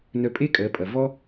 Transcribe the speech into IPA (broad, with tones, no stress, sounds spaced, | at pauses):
n œ˧ pʼ e˥ kʼ ɜ˩˧ pʼ ɐ˩ v ɔ˥